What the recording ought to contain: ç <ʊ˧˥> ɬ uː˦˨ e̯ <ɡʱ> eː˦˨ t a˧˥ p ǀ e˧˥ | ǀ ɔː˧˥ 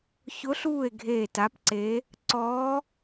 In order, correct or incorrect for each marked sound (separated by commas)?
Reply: correct, correct